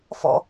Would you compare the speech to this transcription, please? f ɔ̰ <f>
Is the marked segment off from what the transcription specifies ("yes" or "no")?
yes